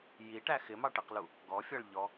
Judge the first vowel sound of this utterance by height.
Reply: high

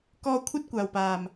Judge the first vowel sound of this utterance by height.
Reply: mid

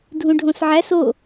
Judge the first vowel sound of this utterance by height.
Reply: high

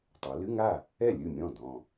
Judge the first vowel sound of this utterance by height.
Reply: mid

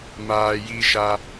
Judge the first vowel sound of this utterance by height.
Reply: low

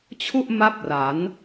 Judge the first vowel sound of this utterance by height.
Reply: high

